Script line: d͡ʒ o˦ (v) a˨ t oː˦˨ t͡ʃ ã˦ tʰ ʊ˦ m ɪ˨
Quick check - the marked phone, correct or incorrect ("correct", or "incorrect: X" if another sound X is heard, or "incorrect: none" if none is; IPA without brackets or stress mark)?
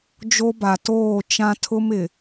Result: incorrect: b